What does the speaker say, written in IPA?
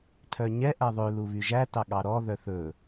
tʰ œ ɲ ɛ ʔ æ ðˤ ø l u β y ʒ æ t ɑ ɠ ɑ ɾ ɔ ð œ θ ɵ

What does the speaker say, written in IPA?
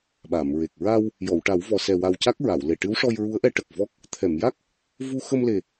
ɓ a˨˩˨ m ɹ e˨˩ k̚ ɹ a˧ w | j ɔ˨˩˨ w ʈ a˨˩˦ w v ɔ˨˩ s ɛ˨˩ w a˨˩ w c a˦˥ k̚ ɹ a˨˩˨ w l e˨˩ ʈ ɨ˧˥ w ʂ ɔ˧ j ɹ u˧˥ ə̯ ʔ ɛ˧˥ ʈ ə˨˩ k̚ v ɔ˦˥ k̚ | t̪ʰ ɛ˨˩˨ m j a˦˥ k̚ | v u˧ x ə˧ m l e˨˩

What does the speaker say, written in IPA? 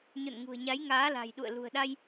ɲ o̰˧˨ n ŋ ṳ˨˩ ə̯ ɲ a˨˦ j ŋ aː˨˦ l a̤˨˩ j ɗ ṵ˧˨ ə̯ l ṳ˨˩ ə̯ ɗ a˧ j

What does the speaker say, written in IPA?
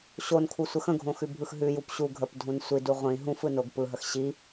ɕ o n kʰ u sʷ ə x ə̃ ɡʱ õ x ʉ bʱ ɯ x ɦ ʉ j u p ɕ u ɡʱ ə p dʱ ũ n sʷ i d u ʁʷ ĩ ɦ ũ f ɯ n o ɡ p ɯ ɦ ə x ɕ i

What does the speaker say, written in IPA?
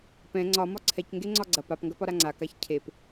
p ɛ̃ ŋ͡ǀ ɒ m ɒ ǀʰ ɛ c ŋ ɡ e ŋ͡ǀ ɒ ɡ͡ǀ ɐ p a p ŋ ɡ ɐ p ɒ ɾ a ŋ͡ǀ a k a ç cʰ e p

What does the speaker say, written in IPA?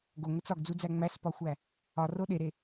ɡ o ŋʷ e t͡s ɒ ɡ d͡z u d͡z æ ŋ͡m æ s p ɒ xʷ æ | ɒ r o ɗ e ɾ e

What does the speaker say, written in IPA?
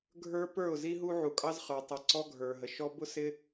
ɡʱ ə˞˦ p ə˞˦˨ ʊ̯ z i˦ ɦ u˦ ʕ u˨ kʼ ɑ˦ z χ ə˞˨ tˤ ɪ˨ ǀ ɔ˦ ɡʱ ə˞˨ ɦ ə˨ ʃ ɔ˦ b ʊ˦ s ɪ˦

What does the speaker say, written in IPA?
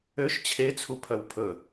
ø ʃ t͡ɕʰ e t͡sʰ u pʰ œ w pʰ ɵ

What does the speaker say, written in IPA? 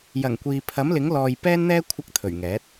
j ɐ˨˩ ŋ kʷ iː˨ pʰ ɐ˨˥ m l ɪ˨˥ ŋ l ɔː˨ j p ɛː˥ n n̪ ɛː˥ kʷʰ ɐ˧ k̚ t̪ʰ ɵ˨˩ ɥ ŋ ɛː˨˥ t̚

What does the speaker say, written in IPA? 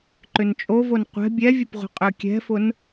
ǃ ʏ n t͡ʃʼ o v o n qʷ ɛ̤ bʲ ɛ vʲ ə p ʁʷ ə̤ qʼ ø kʲ ɛ̤ f ʊ n

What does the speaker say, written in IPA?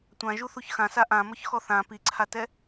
tʷ ã ʒ u θ u ç x ã s a ʔ ã m ɔ ç x ɔ θ ã p i ǀʰ a t ɛ

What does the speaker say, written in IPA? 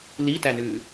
l i t æ n ʉː

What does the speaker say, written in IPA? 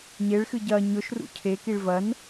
ɲ e ɭ x ɨ ɟ ɐ ɲ ɵ ʃ r ṵ cʰ e k i ɭ v ɐ n

